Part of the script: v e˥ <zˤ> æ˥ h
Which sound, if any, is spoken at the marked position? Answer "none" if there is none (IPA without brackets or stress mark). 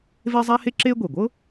zˤ